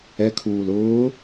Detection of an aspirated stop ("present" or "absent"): present